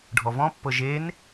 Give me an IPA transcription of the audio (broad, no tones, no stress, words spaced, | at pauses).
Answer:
ɖʱɔvɔ̃pːɤ ʒen